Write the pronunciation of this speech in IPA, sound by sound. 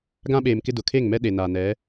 ɡã˦ɓeː˨mkɪ˦dʊ˨ kʰe˦˨ŋmɛ˦ɗe˨ naː˨nɛ˨˦

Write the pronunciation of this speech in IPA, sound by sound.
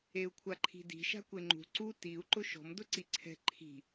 eu̯kʷʰaǃʰi̤di̤ ʃa̤kʷeŋ͡ǃṳ ǀu tiu̯ ǃʊʃɔ̤m dʊǀiǀʰɛ̤ ǃʰi̤

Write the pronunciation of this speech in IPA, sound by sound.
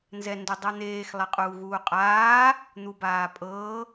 nzɛndudˤɤn̪eːx lˠeqʼuːɣuːqʼaː | n̪ubaːpʼɤː

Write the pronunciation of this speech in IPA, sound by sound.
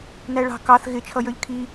næɭɑ̤ kɑθ ɣɪ t͡ʃʰʌjə˞ʎkʰi

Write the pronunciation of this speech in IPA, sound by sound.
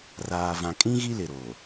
raː˨vã˨kʼĩ˦ ɣi˦lɪ˨ɾoː˨

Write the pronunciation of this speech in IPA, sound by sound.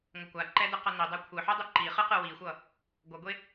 ŋʷʌkʷaǃɛ dɯqʌnidˤɛ kʷʰɯħu dˤɯǃiχɯ qɯwixʷʌ | ɡʷʌɡʷe

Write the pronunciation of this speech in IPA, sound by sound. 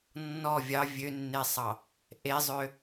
nːɔ vʲɑ vʲønːesˤɑ | ʔezˤø

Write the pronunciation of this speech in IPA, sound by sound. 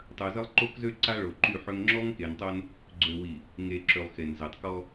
tˤœ˨zə˦lˠǃo˦kzø˦ ǀa˦ɭo˨ǃy˦˨ħø˦ŋ ŋ͡ǁɔ˦ŋke˨ntˤo˦n | ɡ͡ǀø˨wi˨ | ŋe˨ǁø˨lˠ xe˨nzɛ˨tˤkɔ˦

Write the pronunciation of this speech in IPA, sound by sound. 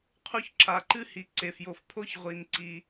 qʰu˦çǁa˨ǃɨ˥hi˨ ǀe˩fjo˨fpʰo˥ç ʁʷi˨n ǀi˩

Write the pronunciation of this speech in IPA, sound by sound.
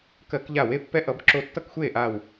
kɜ˧˩˧kʎa˧˩we˥˨ pːɛ˦ʔʌ˩˧b ǁo˧˩tːʌ˥˨kxʷeː˥˨ʔaː˧˩w

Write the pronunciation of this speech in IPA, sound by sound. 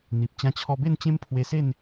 n̪i˨p̚ t͡ɕã˧t͡ɕʰɔ˧be˥˧nt͡ɕẽ˦m pʰwe˧se˥˧n

